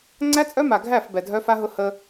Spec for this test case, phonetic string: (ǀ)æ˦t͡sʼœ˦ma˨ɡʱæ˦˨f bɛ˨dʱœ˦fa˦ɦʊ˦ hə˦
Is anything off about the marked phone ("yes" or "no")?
yes